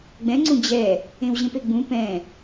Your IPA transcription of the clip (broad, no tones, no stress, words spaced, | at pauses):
ɡ͡bɛ̃ŋ͡ǀũ d͡ʑɛ | ẽwʑẽpeɡ͡bũ pɛ̃